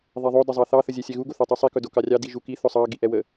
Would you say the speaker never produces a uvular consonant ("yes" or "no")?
yes